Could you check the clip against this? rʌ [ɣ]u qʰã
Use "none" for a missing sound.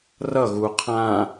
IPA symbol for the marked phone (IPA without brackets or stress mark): ɣ